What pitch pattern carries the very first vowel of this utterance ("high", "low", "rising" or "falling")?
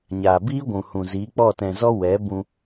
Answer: low